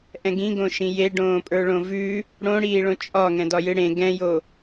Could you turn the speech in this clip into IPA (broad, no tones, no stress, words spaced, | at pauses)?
ʔɛ̃ɡĩɡõʃĩ jeɖõːpʼə˞ ɭõvʉ | ɽõɽiːɭõ t͡ʃʼɒ ŋɛ̃dɒjɨɽẽ ɡɛ̃jo